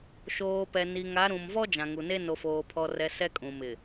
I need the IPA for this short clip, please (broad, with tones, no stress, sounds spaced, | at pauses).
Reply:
ʃ oː˨ p ɛ˨ n i˨ ŋ a˨˦ ɾ ũ˨ m v ɔ˦ d͡ʒ ã˨ ŋ u˨ n e˦ n o˨ f oː˨ pʰ ɔ˨ r ɛ˨ s ɛ˦ kʼ ũ˨ m ɪ˨